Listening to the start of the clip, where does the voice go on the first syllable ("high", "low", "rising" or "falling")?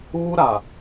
high